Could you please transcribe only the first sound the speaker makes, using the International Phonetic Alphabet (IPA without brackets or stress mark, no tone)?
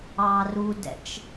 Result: ɑ